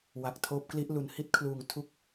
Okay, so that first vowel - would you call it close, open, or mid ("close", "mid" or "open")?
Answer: open